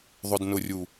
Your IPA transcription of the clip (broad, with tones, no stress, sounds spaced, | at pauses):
ðˤ ʊ˨ d n ʊ˨ rʲ u˨